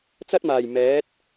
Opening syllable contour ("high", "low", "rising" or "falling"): high